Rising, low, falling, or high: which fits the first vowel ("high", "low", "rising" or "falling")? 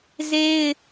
high